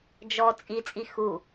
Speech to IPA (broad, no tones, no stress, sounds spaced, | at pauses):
d͡ʒ ɔ t͡sʼ i t͡sʼ i x u